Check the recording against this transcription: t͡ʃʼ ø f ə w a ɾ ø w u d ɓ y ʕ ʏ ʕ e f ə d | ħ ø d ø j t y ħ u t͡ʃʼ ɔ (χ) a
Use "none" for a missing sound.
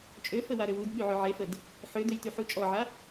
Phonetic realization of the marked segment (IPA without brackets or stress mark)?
ʕ